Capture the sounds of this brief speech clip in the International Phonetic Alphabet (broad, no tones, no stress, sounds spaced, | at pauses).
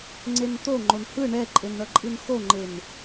ŋ͡ǀ e n t̪ o ŋ͡ǃ o n h ɯ ɳ ɛ ǃʼ e n ɳ ʌ ǃʼ ɯ n x o ŋ͡ǃ e n